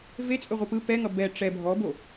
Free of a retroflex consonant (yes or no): no